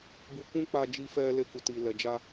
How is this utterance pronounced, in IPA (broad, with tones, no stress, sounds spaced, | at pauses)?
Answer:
b u˧ k ũ˦ k͡p a˧ d͡ʒ i˧ f ɛ˧ l e˧ k u˨ t i˨ l ɛ˨ d͡ʒ a˧